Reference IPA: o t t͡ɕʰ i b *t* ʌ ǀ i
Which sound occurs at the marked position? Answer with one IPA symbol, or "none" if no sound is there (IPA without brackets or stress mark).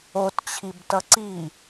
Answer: t